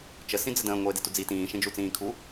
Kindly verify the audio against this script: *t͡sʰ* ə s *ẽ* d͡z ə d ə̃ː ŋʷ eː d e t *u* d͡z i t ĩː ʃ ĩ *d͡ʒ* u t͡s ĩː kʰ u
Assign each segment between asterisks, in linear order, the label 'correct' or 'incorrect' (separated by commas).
incorrect, incorrect, correct, correct